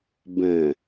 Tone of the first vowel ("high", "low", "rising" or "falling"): low